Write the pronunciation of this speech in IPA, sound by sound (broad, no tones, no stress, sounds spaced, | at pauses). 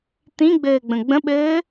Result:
t̪ ĩ ɡ͡b ɘː ɡ͡b ə̃ ɡ͡b ə̃ ɓ ɘː